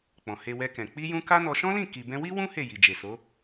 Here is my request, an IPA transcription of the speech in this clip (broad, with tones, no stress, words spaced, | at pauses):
k͡pɔ̃˨he˧wɛ˧kɛ̃˨ k͡pi˧jũ˧ ka˦nɔ˧ ʃɔ̃˦lĩ˦˨ ki˨bɛ̃˧wi˦wũ˦ he˦˨ji˨d͡ʒe˨so˨˦